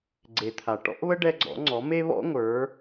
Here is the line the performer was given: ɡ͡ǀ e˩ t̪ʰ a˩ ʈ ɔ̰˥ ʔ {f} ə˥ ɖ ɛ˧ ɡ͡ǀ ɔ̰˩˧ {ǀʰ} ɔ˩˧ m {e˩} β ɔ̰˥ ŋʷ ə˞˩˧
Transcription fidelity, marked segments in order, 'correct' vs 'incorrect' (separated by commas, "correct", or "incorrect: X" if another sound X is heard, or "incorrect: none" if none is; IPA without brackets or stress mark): incorrect: β, incorrect: ŋ͡ǀ, incorrect: e˥